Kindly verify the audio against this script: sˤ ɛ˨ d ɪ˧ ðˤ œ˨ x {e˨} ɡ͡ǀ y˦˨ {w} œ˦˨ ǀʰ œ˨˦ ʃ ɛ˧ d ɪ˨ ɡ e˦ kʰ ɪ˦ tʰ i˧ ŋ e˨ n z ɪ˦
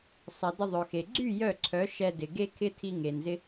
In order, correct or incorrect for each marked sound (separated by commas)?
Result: correct, incorrect